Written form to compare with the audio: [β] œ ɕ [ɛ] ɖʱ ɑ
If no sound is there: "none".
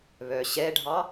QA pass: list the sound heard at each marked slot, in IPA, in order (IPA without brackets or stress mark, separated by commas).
β, ɛ